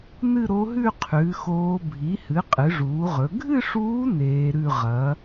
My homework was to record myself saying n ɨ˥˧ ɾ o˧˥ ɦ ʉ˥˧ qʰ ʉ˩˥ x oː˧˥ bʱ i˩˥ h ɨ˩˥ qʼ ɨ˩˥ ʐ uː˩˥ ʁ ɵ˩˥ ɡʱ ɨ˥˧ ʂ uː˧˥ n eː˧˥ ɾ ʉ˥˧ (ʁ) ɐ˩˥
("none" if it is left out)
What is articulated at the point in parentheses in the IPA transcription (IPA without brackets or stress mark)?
ʁ